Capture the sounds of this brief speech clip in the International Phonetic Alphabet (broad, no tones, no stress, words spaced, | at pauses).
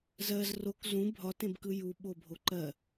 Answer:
zɜz rok zũ bʱɒtẽbkɯ juɓobʱo ǃɜ